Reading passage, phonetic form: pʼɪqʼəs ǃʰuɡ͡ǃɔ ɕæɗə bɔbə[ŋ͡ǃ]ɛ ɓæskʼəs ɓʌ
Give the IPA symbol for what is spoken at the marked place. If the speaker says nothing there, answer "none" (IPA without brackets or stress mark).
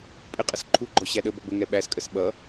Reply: ŋ